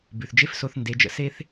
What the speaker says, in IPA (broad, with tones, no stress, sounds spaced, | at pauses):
b ʉ˩ θ d͡ʒ e˥ f s o˧ θ n d e˩˥ d͡ʒ ə̰˧ s e˥ θ